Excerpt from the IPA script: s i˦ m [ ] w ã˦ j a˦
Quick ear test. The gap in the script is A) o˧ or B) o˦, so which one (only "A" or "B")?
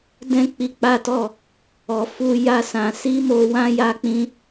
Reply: A